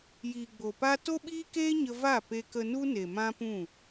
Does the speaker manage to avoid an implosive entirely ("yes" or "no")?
no